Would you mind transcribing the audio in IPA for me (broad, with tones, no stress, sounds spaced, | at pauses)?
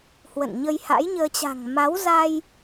h w ə̰˧˨ n ɲ ə˧ j h a̰˧˥ j ɲ əː˧ t͡ɕ a̤˨˩ ŋ m a˨˦ w z a˧ j